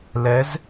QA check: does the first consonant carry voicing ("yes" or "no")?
yes